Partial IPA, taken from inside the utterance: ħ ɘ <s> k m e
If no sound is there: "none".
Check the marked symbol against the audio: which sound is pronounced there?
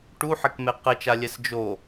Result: none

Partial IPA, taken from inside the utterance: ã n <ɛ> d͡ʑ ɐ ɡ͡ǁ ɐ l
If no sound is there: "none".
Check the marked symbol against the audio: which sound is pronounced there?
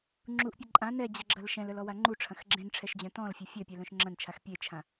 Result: ɛ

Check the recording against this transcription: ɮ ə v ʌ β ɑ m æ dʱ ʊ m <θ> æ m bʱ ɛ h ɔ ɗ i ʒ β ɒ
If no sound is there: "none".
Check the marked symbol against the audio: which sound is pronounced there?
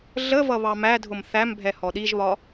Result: θ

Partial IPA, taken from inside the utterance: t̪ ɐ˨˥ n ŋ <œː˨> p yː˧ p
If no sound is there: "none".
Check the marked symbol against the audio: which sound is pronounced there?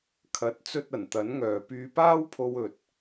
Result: œː˨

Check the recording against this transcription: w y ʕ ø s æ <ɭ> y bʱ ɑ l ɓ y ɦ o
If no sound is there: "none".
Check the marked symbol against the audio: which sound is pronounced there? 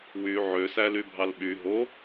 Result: l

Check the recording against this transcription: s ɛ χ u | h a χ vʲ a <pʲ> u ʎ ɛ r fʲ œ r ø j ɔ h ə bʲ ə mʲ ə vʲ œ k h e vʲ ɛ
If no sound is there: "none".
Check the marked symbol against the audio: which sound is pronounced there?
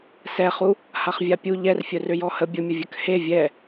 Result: pʲ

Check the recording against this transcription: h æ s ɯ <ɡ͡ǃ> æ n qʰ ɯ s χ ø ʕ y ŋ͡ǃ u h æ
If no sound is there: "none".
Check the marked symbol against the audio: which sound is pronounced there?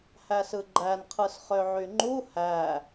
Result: ɡ͡ǃ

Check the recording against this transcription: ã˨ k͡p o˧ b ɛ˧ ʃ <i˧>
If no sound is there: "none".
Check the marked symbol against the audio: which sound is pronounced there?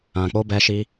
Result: i˧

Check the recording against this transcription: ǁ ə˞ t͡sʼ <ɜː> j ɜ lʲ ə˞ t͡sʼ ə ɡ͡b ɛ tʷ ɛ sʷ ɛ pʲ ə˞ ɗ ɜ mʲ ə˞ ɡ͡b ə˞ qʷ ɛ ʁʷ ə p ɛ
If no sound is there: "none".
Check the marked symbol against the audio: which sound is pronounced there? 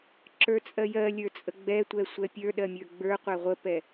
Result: ɜ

